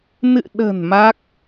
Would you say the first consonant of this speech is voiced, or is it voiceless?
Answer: voiced